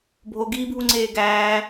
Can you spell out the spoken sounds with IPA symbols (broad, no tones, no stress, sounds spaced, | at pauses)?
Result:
bʱ o ɡ iː bʱ u ŋ͡ǀ eː ɡ æː